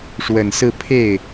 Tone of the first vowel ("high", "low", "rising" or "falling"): low